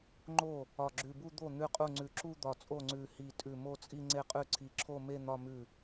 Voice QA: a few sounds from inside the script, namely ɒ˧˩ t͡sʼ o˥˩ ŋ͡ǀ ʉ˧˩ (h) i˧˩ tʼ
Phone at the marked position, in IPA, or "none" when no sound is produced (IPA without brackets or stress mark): h